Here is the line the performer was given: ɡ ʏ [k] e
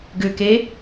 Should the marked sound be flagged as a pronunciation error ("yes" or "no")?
no